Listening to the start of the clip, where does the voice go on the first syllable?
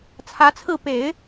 rising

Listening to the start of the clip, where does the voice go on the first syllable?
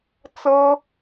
high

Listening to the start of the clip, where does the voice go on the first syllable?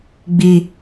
low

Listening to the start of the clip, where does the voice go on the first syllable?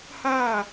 falling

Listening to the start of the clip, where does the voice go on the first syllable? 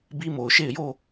high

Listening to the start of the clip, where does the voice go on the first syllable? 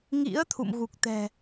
rising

